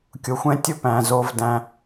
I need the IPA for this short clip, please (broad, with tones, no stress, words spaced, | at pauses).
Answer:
kʲʊ˩xʷɛ̃˧ tʲʊ˧pæ̃˩ zo˧vdæ̃˧